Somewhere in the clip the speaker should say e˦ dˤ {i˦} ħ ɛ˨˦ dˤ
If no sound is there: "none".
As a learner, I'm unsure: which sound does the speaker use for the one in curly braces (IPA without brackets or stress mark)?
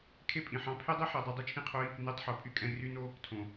i˦